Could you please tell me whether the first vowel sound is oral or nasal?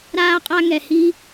oral